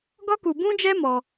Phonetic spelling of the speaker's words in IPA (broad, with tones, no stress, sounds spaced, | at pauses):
ɡ ɔ˦ k u˧ b ũ˦ d͡ʒ ɛ˦ m ɔ˦